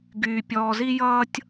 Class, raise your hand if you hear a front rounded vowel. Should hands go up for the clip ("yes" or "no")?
yes